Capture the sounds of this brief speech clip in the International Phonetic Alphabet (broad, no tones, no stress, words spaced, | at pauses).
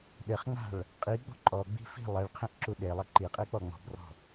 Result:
ɗɘχŋ͡ma̤ɭ | qʼi ɡ͡bɔ̤ǃʼɔɡ͡bi̤ fi̤ lˠeɭqʰẽʔ ǁuɗelˠɐ ǃiqʼe k͡pɔŋ͡mɔ̤brɔ̤